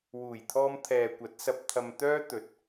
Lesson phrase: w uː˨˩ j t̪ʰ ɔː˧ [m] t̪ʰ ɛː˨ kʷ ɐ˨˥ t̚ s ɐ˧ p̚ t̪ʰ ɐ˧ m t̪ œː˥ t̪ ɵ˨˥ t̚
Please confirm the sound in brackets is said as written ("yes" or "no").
yes